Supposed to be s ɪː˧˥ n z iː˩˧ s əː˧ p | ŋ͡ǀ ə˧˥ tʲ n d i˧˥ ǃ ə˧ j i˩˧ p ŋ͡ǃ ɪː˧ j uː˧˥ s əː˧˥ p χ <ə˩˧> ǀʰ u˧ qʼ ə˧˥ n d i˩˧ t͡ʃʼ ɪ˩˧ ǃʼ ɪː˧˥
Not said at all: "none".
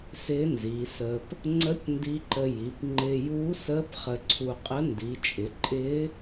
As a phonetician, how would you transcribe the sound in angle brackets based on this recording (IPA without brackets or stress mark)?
ə˧